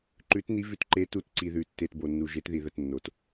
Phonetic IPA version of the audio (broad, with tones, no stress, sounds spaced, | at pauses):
ǃ ʉ˩˧ t n i˩˧ v ʉ˩˧ t ǃ e˩˧ t u˩˧ t ǀ i˩ ð ʉ˩ tː e˩˧˩ t b o˩ nː u˩ ʒ e˩˧ t ð i˩ ð ə˩ t nː o˩ t